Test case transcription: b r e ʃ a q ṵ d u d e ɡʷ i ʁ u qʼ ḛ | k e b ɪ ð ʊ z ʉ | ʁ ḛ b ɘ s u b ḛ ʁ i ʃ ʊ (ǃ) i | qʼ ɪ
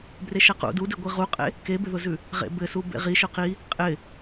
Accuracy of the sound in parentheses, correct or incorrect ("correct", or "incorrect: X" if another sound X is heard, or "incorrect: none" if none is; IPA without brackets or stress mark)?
incorrect: q